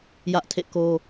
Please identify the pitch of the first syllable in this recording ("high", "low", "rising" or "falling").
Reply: high